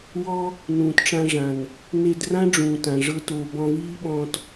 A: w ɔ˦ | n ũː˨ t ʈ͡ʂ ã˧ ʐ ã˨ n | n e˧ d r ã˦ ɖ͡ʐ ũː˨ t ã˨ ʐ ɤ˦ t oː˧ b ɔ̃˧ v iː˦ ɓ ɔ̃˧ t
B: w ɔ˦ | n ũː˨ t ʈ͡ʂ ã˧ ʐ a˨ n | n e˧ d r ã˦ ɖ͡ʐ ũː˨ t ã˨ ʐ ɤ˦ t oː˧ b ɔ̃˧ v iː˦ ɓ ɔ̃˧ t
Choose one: A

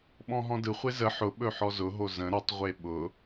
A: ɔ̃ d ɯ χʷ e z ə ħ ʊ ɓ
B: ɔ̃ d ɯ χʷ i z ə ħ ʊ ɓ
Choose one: A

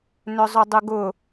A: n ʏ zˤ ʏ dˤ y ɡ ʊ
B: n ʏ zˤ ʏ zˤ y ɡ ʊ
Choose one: A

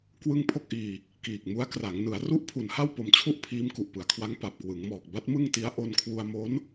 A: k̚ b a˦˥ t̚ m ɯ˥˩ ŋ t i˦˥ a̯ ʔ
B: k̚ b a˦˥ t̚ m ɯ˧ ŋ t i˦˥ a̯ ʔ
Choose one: A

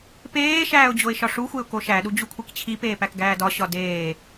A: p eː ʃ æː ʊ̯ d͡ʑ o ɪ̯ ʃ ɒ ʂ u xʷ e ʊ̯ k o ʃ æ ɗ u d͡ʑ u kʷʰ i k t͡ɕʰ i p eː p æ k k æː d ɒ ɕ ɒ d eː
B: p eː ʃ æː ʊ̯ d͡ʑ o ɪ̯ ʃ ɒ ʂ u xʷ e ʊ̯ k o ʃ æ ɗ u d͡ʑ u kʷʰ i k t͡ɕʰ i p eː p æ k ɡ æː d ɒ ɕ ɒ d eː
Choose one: B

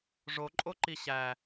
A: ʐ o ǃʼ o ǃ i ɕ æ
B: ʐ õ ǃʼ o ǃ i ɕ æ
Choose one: A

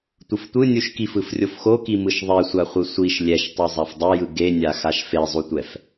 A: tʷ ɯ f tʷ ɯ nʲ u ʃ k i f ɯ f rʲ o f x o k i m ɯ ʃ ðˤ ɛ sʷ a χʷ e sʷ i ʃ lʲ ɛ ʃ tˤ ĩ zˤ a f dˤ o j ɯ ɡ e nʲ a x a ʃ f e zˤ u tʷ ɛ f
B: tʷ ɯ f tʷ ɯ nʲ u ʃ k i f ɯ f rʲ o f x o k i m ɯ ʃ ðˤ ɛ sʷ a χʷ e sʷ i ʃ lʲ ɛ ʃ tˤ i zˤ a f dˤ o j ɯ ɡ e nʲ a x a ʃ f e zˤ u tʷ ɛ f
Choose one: B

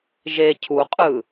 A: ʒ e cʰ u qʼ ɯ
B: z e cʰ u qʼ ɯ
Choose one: A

